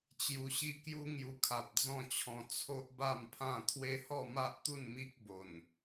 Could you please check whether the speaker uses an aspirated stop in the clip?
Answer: yes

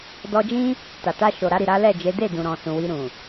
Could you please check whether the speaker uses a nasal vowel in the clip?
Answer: yes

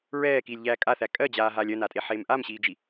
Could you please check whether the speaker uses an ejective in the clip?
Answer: yes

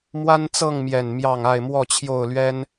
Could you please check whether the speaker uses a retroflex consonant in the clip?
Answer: no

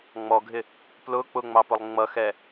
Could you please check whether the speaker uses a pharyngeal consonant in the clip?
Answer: no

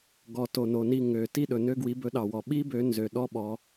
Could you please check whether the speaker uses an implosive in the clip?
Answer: yes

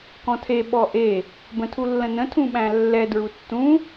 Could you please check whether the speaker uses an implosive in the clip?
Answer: yes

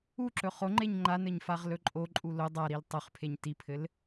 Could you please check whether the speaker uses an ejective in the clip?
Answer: yes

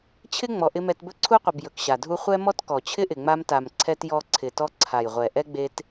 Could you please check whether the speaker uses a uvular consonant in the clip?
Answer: yes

